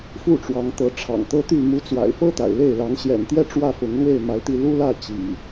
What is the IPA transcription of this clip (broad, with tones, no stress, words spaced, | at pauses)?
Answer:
fu˥˨ʈ͡ʂwɑ˨˦ŋt̪ɤ˨˦ ʈ͡ʂʰɑ̰˨˩ŋt̪ɤ˦t̪y˥˨ mu˨˦t͡swa̰˨˩ɪ̯fɤ˦ t̪a̰˨˩ɪ̯le˥˨ɪ̯ lɑ˨˦ŋɕjɛ̰˨˩nt̪jɛ˥˨ ʈ͡ʂwä˥˨fʊ˨˦ŋlwe˥˨ɪ̯ ma˨˦ɪ̯t̪i˥˨ lu˦lä˥˨ t͡ɕḭ˨˩